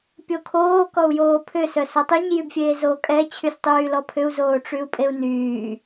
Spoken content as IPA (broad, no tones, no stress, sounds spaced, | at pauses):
pʲ o kʰ oː k ɔ u̯ j oː pʰ ʏ s œ s o tˤ y ɲ j y b fʲ eː z oː kʼ ɛ t͡ɕʰ y s tˤ yː l ɔ pʰ ʏ u̯ z oː ʈ͡ʂ y u̯ pʼ e u̯ n yː